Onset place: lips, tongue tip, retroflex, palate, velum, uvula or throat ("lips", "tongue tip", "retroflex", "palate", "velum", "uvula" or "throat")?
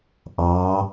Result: throat